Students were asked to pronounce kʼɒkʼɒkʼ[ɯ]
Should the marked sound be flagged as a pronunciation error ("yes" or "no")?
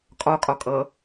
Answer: yes